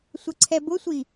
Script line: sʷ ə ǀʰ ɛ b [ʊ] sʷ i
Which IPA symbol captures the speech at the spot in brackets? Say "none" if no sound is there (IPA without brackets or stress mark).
ʊ